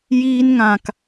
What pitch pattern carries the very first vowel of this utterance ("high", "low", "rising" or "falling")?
high